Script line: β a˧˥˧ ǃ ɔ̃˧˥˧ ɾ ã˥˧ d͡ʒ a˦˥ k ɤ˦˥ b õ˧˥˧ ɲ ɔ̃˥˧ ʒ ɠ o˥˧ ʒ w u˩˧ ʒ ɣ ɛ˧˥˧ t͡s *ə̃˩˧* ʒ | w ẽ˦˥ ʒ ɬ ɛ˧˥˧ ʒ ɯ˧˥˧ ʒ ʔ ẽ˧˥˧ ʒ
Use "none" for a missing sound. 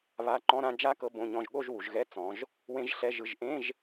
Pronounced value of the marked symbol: ɔ̃˩˧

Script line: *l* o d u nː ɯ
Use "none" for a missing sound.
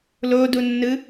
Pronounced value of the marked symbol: l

